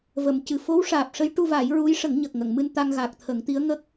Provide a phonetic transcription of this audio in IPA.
və˨˩˨mcɨ˨˩ fo˧˥wʂaː˨˩p̚ʂə˧˥j ʈu˧va˨˩˦j ɹu˧˥jʂə˨˩˦ŋ ɲə˨˩k̚ŋə˨˩˨ŋ mɨ˧nt̪a˧ŋɣa˨˩k̚t̪ʰə˨˩˦ŋ t̪i˧˥ə̯ŋə˦˥k̚

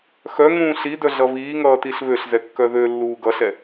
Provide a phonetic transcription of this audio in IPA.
xœ ŋũːɬidœ ɮʌβiːŋʌː tiɬβøɬzɛ kːœðølːuː ɡʌɬɛ

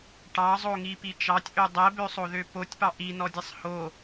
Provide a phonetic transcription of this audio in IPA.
ʈɑzˤoŋipi t͡ʃɑtʲʔø dˤɛbøsˤoðø potʲpɑ ʔinɔdʲɛsˤ ho

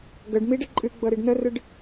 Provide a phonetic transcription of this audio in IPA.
ɡəɖ miɖə ǃʼɨɡ͡bɤɾiɖ nərɨɖ

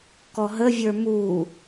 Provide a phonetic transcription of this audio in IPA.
kɔɦəvʲə˞ mu

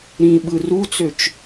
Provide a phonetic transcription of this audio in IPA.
ɾĩɓɯ rut͡søt͡ʃ

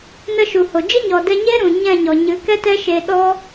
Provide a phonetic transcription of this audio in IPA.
nə˦˨ʃu˨ho˨ d͡ʒɨ˦ɲɔ˨dɛ˧ɲeː˦ ɾũ˨ɲɛ̃˦˨ɲɔ˨ ɲɨ˨˦kɛ˦tɛ˦ʃe˧ ɗɔ˦

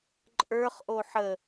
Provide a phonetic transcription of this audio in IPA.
ǃʼə˞χʔo ħə

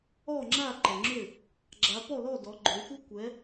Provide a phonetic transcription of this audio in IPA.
ɔ˥˨ŋ͡ǁa˥˨ ǃə˨ŋ͡ǁʏ˥˨ | ɡ͡ǁa˨˦pɔ˥˨lɔ˥˨ dɔ˨˦ɡ͡ǃo˨˦xʷɐ˥ kʷɛ˨˦

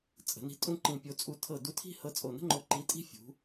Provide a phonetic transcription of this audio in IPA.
t͡sʼə̤˩˧ni̤˧ tʼũ˥˧ǃĩ˧˩pʲo˧ t͡sʼu˧˩tʰɤ˧˩du˧tʰi̤˥˧ hɤ˧t͡sʼo˧˩nə̤˥ŋ͡ǃo˧ ǃi˧tʼi̤˥fʲṳ˩˧

